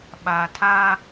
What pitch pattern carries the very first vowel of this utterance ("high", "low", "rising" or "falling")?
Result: low